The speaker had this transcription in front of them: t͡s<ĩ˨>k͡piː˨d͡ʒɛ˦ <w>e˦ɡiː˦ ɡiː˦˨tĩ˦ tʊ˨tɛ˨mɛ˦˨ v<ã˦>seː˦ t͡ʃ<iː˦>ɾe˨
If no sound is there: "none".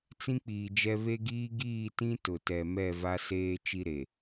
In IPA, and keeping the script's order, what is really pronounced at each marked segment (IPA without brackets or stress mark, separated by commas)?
ĩ˦, β, a˦, i˦